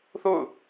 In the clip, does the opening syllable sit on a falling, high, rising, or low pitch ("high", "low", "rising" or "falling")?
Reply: falling